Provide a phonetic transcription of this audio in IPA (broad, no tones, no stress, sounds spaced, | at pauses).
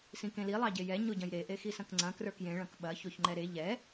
s ĩ k ẽ l i lˠ ɑ ɟ e j ɛ ɲ o ɟ ɐ̃ j ɾ e ʔ e x i s ɐ̃ k ŋ͡ǀ ɐ̃ k r ə˞ k j ẽ ɭ ɐ̃ k ɓ ɐ ç o ç ŋ͡ǃ ɛ ɾ e ʎ ɛ